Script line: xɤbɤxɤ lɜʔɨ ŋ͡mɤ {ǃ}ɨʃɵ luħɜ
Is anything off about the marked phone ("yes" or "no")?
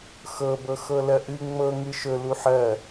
yes